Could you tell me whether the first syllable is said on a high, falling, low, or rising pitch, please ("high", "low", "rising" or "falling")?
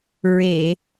low